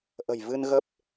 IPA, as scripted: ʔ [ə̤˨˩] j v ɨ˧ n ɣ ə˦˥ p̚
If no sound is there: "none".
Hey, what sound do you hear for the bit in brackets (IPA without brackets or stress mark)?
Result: ə̤˨˩